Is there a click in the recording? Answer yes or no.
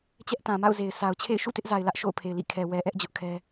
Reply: no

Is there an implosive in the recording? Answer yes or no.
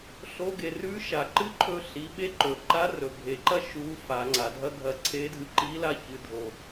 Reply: yes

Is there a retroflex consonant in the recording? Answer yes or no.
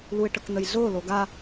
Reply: yes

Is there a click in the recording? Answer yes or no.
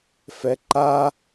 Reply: yes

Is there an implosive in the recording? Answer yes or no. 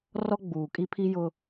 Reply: no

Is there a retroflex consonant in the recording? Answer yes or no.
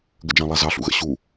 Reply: no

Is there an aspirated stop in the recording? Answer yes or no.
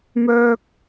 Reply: no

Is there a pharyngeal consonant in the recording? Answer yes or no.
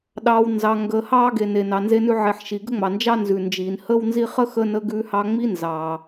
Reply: yes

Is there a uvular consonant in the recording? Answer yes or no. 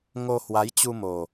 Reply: no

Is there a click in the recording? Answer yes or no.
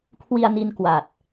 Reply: no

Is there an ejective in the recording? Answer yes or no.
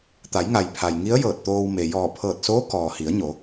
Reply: no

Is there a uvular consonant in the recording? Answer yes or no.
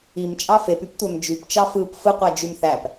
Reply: yes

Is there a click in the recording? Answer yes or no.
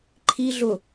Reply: yes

